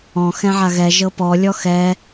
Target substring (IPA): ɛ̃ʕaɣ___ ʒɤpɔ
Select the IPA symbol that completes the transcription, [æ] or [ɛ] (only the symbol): ɛ